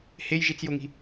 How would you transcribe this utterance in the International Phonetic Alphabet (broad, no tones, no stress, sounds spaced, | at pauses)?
h e j ʒ i t͡s j o ŋ i̤